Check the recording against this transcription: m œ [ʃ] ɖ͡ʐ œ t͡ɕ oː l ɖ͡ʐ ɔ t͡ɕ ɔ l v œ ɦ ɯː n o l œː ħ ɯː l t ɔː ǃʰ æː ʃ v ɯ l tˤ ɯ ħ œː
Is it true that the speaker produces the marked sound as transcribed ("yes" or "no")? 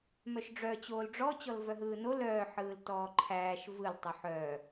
yes